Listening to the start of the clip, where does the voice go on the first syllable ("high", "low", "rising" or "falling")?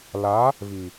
rising